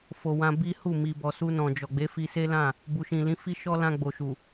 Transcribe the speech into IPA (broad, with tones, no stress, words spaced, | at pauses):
fo˨wã˧ bi˦hu˦˨ mi˨bɔ˨su˧ nɔ̃˨d͡ʒɔ˨ɡ͡be˨˦ fi˧se˦lã˦˨ | bu˨ʃĩ˨lĩ˨˦ fi˦ʃɔ˦ lã˧ɡ͡bo˨ʃu˨